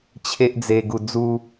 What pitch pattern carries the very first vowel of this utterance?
high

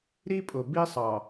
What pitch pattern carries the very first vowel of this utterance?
high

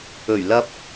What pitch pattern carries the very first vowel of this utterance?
low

